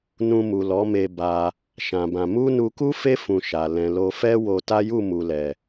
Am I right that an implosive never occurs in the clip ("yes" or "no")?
yes